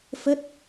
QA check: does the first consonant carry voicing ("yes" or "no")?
no